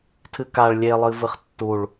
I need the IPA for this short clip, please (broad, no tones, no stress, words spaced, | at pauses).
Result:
tʰɨkaɭ lʲelˠɨ vɨχtːuɭ